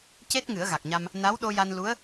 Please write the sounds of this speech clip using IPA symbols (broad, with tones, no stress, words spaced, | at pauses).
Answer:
ce˦˥t̚ ŋɨ˨˩˦ə̯ɣa˨˩k̚ɲa˧m | na˧˥wɗo˧ja˧n lu˧˥ə̯